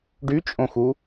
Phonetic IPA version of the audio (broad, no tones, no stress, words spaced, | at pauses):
ɖyt͡ʃʼõxu